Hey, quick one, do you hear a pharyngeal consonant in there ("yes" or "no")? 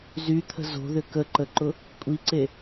no